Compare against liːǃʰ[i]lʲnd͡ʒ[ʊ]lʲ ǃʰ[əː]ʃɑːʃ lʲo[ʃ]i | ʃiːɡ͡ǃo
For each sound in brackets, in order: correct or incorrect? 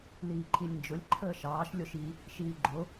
correct, correct, correct, correct

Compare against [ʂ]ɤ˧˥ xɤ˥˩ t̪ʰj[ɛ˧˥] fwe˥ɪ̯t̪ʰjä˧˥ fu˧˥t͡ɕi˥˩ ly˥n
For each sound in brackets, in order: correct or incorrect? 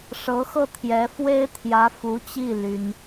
correct, correct

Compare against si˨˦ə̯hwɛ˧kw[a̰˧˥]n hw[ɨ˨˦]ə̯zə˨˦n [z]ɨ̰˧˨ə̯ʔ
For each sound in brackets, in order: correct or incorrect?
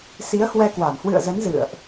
incorrect, incorrect, correct

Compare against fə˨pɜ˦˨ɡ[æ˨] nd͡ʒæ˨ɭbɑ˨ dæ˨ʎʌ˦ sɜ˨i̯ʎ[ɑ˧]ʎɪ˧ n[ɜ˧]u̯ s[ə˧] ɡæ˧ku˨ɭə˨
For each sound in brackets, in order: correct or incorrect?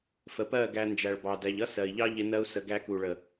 incorrect, incorrect, correct, correct

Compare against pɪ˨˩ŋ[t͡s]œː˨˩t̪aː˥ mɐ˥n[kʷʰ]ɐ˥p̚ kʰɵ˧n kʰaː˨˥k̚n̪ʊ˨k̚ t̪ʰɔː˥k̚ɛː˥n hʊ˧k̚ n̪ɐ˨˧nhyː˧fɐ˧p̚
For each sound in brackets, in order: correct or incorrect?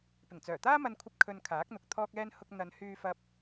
correct, correct

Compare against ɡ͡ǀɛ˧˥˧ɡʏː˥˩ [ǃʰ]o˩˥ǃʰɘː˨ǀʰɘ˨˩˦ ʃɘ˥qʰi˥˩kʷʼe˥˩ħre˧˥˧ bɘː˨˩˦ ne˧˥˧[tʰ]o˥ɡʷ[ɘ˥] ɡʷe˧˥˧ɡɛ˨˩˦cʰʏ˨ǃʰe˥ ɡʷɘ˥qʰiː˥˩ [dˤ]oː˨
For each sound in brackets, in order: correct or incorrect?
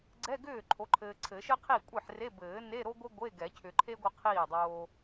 correct, incorrect, correct, correct

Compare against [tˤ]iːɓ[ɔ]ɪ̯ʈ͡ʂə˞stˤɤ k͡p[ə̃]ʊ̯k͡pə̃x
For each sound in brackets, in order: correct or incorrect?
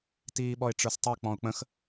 incorrect, correct, incorrect

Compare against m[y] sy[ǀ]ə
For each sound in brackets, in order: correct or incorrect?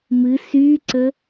incorrect, correct

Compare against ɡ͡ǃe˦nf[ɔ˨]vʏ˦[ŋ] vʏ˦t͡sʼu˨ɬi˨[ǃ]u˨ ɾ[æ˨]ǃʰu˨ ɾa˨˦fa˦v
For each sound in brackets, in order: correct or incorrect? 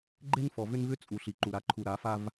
correct, incorrect, correct, incorrect

